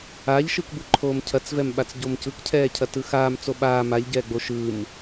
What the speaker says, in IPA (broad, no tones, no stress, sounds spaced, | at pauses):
aː ʎ ʃ ɯ k b ɯ ǃʰ oː m cʰ ɐ t͡s v ɛ m ɓ a t͡s ɟ o m c ɯ k cʰ ɛː cʰ ɐ t ɯ x aː m t͡s o ɓ aː m a ʎ ɟ ɛː ɡ͡b o ʃ ɯ m